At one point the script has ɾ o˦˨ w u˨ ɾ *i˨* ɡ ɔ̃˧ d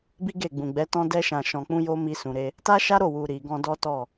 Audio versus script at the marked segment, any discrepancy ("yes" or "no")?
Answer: no